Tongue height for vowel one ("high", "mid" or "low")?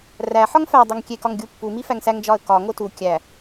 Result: low